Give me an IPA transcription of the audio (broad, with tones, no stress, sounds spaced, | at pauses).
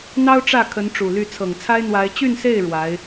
n̪ ɑ˥ ʊ̯ ʈ͡ʂ ä˥˩ kʰ ə˧˥ n ʈ͡ʂ u˨˩ l y˥˩ t͡sʰ ɤ˨˩ ŋ t͡sʰ a˥ ɪ̯ n̪ w a˧˥ ɪ̯ t͡ɕ y˥˧ n s e˥˩ ɪ̯ ɻ w a˧˥ ɪ̯